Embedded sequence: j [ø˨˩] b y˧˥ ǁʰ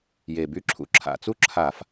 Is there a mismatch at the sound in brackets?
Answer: yes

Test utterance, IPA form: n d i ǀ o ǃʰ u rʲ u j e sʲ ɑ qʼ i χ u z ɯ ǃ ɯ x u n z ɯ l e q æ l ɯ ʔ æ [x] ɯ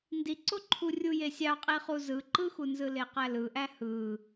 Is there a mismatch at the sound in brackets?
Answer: yes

